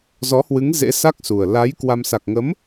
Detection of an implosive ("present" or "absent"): absent